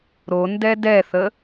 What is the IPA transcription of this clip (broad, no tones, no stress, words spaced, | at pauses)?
ɾo ndɛdɛθə